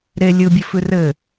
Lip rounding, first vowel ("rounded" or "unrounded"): unrounded